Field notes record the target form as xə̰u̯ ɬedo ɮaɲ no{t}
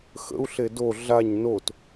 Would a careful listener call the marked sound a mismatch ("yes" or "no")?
no